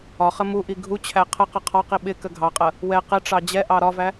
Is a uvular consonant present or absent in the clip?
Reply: present